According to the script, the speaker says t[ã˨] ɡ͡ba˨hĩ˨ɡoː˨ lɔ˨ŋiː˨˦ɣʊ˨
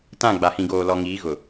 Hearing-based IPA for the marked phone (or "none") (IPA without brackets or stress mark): ã˦˨